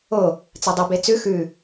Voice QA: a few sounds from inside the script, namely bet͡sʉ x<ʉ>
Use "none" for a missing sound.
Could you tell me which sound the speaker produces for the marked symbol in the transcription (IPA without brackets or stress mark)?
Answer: ʉ